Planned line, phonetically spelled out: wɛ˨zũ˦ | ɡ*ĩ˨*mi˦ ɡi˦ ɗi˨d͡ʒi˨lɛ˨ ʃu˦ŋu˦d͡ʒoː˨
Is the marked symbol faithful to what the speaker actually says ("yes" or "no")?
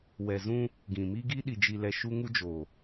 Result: yes